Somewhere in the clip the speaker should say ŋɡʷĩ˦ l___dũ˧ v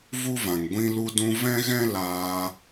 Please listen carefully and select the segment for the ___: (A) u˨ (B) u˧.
B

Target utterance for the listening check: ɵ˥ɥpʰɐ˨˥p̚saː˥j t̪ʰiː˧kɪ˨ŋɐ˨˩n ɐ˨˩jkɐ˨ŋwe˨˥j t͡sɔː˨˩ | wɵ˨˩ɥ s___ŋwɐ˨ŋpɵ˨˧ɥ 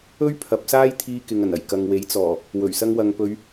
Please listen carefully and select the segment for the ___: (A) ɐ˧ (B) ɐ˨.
A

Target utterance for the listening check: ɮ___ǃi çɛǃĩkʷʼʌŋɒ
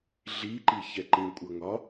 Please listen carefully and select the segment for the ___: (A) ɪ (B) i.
B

